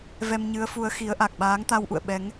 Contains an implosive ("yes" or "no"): yes